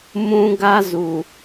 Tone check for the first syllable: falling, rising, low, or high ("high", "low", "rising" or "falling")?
high